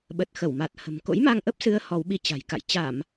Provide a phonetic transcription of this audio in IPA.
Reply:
ɓ ə˨˩ t̚ x ə˧˩ w m a˨˩ t̚ h ə̤˨˩ m k o̰˧˥ j m a˧ ŋ ʔ ə˦˥ p̚ s ɨ˨˦ ə̯ h ɔ˨˦ w ɓ i˧ t͡ɕ a̤˨˩ j k a̰˧˨ j t͡ɕ a˧˩˨ m

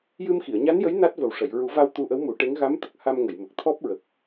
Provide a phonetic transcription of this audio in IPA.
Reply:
j ɨ˧ m x i˨˩˨ ə̯ ɲ a˧˥ n j ə˧˥ j n a˦˥ t̚ v ə˨˩ w ʂ ə˨˩˨ j ɹ u˨˩˦ v a˧ w t̪ u˧ ʔ ə˧˥ w m u˨˩˦ ʈ e˧˥ ŋ ɣ a˧˥ m t̪ ə˨˩ k̚ h a˧ m ŋ ə˨˩˨ j m ə˨˩ k̚ t̪ʰ ɔ˦˥ p̚ ɹ ə˨˩ k̚

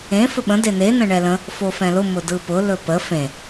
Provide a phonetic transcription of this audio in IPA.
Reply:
ẽ f ɵ ɓ ə̃ d e n e n ə̃ ɳ ɛ l ə̃ | f o f ɛ̃ l ʊ m ʊ d ɯ p ʊ l ɵ p ə f ẽ

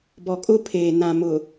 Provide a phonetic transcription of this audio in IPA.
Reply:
b ɔ˨ kʼ ʊ˦ pʰ eː˨ n ã˨ m ʊ˨

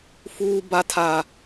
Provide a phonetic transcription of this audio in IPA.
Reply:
f uː˦ b a˦ tʰ a˦

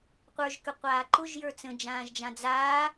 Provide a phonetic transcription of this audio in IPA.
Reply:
qʷ ə˞ ʒ k ʏ qʷ aː ǃ ʊ ʒ j ə˞ t͡s ə̃ d͡ʒ ãː ʒ d͡ʒ ã d͡z aː

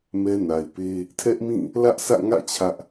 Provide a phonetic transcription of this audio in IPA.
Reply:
m ɛ˦ n a˨ ɪ̯ p e˦ | tʰ ɛ˦ ʔ m ĩ˦˨ | l ä˦ ʔ s ä̰˦˨ ŋ ä̰˦˨ t͡ɕʰ ä˦ ʔ

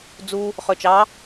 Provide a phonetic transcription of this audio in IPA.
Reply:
d͡z u | χ ø t͡ʃ ɑ

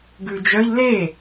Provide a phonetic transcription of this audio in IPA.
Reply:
ɡ ʉ d͡ʒ œ ʎ l e

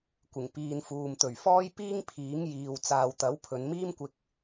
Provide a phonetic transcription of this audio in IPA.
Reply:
kʷ ɪ˨˩ ŋ p iː˨ n f uː˨ m t̪ ɵ˨˩ ɥ f ɔː˥ j p iː˥ ŋ pʰ iː˨˥ ŋ j iː˨ w t͡s aː˨ w t̪ ɐ˨˥ w pʰ ɵ˨˧ n m iː˥ m kʷ ɪ˧ k̚

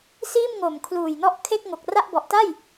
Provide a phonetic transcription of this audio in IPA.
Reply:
s iː˥˩ m ŋ o˨˩ m kʰ l uː˨˩ j n ɔ˥˩ ʔ kʰ e˥˩ k̚ ŋ o˨˩ k̚ r a˥˩ ʔ b ɔ˨˩ ʔ t a˥˩ j

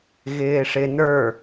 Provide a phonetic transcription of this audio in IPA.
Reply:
ɣ ɪː ʂ ɪ n ə˞

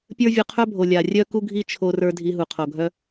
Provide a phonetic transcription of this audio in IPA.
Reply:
pʲ ə˞˦ vʲ o˧ qʰ œ˦ bʱ o˨ lʲ a˨ rʲ œ˦ k u˦ ɡʱ i˦ t͡ʃʰ o˧ r ə˞˧ dʱ i˧ ɦ u˨ qʰ o˨ ɡʱ œ˦

